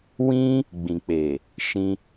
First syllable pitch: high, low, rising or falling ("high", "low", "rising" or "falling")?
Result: high